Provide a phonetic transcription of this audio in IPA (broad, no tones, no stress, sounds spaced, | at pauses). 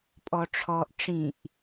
pʼ ɔ ʈ͡ʂʰ ɔ ʔ ʈ͡ʂ ĩ ʔ